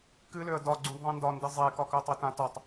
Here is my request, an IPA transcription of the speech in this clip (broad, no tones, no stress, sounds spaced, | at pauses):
k ɨ l ø ə̯ d ɒ ɡ͡ǀ ũ d ðˤ ẽ n d ɒ n d ɨ zˤ e k ɒ k œ tˤ i t ã t ɒ tˤ